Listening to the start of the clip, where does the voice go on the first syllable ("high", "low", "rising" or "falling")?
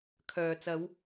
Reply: low